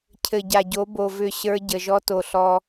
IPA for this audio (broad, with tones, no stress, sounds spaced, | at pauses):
cʰ ɘ˨ ɟ a˨ ɟ o˨˦ b o˨ v ʏ˦˨ ɕ ə˞˦ ɟ ə˨ ʒ ɔ˦ t o˨ ɬ ɔ˦